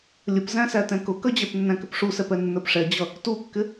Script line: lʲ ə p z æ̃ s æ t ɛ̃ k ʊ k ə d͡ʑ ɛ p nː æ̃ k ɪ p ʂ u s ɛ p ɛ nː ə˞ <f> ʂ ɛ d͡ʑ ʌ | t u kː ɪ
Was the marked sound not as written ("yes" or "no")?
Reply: yes